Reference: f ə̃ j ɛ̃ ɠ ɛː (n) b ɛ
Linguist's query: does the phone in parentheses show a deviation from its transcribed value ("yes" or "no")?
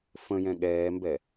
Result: yes